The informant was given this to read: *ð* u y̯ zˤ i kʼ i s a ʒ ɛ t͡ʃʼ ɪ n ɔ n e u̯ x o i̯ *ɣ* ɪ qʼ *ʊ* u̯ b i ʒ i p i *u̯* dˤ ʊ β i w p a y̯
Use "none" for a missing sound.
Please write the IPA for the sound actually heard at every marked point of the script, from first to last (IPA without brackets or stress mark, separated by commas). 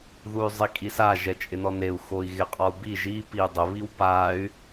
ð, ɣ, ɔ, u̯